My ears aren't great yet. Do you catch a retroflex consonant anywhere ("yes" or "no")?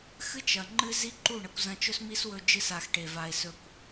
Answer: yes